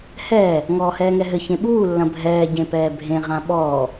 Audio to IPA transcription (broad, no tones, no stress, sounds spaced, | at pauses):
h ɛː | ŋ ɔː h ɛː ŋ ɛ ɦ ɘ ç ẽ ɓ uː lː ɐ̃ bʱ ɛː ɟ ẽ p ɛː bʱ ẽ ʁ ã ɓ ɔː